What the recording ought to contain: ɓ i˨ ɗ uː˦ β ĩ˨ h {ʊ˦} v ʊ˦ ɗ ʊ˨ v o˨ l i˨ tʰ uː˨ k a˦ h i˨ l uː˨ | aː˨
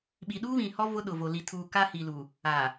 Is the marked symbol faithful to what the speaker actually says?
no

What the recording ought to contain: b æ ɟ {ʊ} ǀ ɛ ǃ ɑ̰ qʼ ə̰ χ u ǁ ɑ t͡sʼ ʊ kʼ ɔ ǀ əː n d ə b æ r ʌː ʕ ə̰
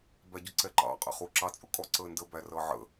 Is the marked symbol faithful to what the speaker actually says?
yes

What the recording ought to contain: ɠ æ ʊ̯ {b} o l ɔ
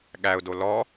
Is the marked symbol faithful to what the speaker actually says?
no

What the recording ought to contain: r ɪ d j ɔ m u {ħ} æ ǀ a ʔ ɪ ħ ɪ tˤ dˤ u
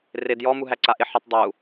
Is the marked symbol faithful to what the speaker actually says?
no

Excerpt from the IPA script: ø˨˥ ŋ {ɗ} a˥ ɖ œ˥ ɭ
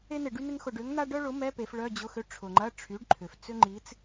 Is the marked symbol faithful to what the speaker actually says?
no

